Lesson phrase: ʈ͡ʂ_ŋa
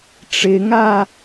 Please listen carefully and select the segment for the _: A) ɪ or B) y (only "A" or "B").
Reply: A